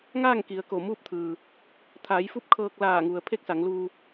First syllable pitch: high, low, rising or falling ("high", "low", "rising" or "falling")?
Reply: falling